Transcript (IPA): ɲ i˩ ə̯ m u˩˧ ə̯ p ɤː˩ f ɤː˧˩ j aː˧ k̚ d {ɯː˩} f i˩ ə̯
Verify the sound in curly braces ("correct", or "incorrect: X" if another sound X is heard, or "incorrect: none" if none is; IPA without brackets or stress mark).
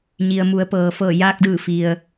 incorrect: ɯː˧˩